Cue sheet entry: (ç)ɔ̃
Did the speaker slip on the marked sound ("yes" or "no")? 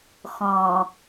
yes